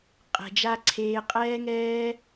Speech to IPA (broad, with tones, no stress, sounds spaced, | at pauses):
qʼ ɛ̤˨ d͡ʒ a˦ ǀʰ eː˧ qʼ ɛː˦ ŋ ɛː˦